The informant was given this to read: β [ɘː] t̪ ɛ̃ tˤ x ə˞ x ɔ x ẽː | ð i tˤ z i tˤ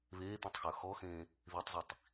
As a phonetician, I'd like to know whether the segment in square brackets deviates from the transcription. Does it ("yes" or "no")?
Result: yes